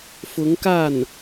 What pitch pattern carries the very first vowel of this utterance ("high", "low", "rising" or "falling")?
rising